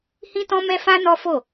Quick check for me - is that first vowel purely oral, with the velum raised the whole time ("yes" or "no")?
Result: no